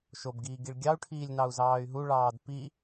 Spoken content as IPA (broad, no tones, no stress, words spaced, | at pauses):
ʃobɡiː ɡiɭɡʲɑu̯ʈʰiːlʲ nɑu̯zɑːy̯ɦuɭɑːd pi